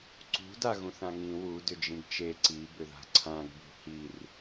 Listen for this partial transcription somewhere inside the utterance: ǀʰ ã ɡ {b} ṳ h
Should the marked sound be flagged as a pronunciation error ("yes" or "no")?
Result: no